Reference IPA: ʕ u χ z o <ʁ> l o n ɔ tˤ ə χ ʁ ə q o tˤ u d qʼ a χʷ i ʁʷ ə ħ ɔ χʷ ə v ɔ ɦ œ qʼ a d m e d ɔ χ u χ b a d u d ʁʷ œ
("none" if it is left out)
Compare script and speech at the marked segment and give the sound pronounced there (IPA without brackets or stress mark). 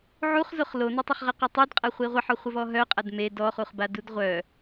χ